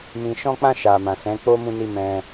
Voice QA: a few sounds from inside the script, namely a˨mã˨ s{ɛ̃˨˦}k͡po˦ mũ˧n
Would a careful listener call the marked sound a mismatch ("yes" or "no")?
no